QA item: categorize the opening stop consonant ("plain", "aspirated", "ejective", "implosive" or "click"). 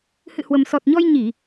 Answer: plain